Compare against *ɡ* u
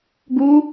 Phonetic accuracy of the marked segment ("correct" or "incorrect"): correct